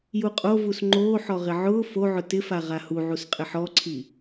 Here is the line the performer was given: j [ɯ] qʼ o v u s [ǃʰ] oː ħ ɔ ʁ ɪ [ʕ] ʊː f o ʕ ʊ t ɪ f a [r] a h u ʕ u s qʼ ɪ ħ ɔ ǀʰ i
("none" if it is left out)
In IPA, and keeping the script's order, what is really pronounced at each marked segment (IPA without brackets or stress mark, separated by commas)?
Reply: u, ŋ͡ǃ, ʕ, ʁ